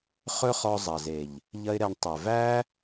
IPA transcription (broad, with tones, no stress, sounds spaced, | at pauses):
χ ɵ˦ χ ɔ˧ zˤ ɐ˨ z e˨ ʎ | ʎ ɐ˦ ɪ̯ ɾ ɛ˧ ɳ tˤ ɛ˨ v æ˦